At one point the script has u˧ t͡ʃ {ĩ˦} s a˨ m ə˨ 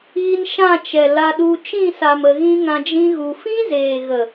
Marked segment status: incorrect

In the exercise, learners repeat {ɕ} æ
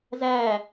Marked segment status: incorrect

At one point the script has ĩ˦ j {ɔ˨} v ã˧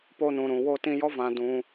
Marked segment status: incorrect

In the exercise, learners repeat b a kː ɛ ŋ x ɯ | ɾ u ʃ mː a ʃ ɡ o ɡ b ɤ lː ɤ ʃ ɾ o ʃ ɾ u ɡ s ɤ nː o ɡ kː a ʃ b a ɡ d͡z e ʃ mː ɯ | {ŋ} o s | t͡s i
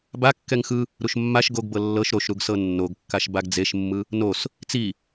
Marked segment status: incorrect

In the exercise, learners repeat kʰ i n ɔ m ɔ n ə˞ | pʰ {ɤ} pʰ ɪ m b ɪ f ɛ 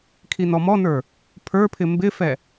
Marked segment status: incorrect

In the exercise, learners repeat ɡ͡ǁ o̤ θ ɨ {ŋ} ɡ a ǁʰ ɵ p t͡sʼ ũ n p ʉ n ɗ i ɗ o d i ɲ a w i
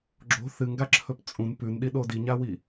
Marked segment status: correct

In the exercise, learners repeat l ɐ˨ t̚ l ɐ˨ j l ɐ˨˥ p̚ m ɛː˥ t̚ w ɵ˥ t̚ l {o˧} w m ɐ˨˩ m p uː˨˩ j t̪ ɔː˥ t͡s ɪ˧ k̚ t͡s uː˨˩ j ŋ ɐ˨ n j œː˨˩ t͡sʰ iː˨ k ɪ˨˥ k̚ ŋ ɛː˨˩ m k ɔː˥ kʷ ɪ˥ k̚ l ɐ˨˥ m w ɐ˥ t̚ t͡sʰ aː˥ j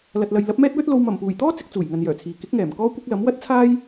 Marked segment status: correct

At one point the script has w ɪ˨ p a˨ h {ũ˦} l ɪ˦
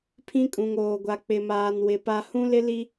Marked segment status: correct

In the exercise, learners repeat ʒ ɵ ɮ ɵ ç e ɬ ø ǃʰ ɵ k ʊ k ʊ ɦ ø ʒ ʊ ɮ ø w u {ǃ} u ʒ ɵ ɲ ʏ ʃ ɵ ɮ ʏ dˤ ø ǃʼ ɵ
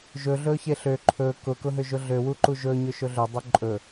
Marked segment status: correct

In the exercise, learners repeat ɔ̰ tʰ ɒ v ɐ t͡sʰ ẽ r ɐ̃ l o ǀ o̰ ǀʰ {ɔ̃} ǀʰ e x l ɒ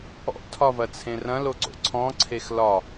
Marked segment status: correct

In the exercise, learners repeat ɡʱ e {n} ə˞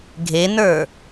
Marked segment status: correct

